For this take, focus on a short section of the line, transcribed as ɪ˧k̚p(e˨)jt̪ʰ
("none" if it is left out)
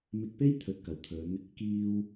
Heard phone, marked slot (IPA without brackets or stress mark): e˥